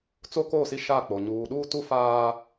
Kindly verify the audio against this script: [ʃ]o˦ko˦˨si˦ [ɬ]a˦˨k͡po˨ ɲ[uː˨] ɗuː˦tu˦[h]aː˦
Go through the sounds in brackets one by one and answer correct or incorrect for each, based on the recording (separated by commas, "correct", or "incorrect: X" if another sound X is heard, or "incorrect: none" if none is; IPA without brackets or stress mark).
incorrect: t͡s, incorrect: ʃ, correct, incorrect: f